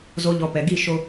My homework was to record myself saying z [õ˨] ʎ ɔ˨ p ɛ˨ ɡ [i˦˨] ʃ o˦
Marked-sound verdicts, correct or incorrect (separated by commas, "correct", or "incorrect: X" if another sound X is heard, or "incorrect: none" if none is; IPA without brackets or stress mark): incorrect: o˨, correct